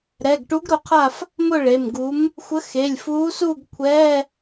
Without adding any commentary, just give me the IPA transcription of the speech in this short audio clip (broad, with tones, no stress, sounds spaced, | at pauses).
ɾ ɛ˩˧˩ ɡ ʈ u˨˥ ɡ ɾ ʊ˨˥ qʰ a˥˨ f | m ʊ˥˨ ɭ e˩˧˩ m ɡ u˨˥ m | xʷ ə˨˥ x e˩˧˩ lʲ f uː˨˥ s uː˥˨ ɡ kʷʰ ɛː˧˥˧